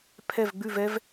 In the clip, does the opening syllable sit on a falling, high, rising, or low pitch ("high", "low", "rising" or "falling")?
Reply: falling